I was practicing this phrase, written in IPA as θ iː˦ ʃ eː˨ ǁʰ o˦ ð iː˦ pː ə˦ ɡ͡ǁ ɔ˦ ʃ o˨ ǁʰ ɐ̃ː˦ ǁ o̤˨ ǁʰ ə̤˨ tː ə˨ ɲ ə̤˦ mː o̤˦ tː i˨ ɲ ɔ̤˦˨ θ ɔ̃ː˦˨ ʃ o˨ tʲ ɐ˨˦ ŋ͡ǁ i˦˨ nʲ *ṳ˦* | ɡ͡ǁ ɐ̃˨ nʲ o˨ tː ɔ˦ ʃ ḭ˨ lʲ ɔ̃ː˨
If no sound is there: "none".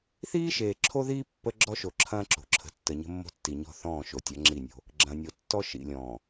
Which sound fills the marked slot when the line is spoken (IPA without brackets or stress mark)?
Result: o̤˦